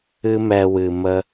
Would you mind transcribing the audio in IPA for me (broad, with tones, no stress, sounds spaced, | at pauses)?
ɨ˦ m ɛ˧ w ɨ˨ m ə˦